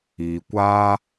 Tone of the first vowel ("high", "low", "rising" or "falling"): low